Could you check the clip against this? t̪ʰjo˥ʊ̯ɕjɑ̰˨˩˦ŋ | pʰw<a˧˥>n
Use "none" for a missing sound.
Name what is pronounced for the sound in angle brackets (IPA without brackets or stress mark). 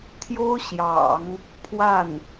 a˥˩